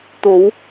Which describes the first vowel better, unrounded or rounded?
rounded